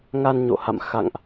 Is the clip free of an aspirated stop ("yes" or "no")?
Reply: yes